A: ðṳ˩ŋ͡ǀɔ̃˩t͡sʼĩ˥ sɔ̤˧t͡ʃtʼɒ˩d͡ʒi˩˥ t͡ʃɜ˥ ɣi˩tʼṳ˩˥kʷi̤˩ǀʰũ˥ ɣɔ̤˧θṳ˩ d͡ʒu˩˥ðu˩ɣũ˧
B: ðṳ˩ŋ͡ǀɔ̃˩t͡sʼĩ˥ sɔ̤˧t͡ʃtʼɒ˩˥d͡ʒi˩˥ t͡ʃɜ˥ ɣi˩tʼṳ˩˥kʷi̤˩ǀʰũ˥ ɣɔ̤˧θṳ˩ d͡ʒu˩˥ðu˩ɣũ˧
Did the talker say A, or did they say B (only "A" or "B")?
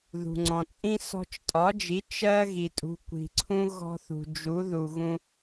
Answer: B